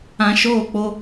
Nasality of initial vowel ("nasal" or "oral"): nasal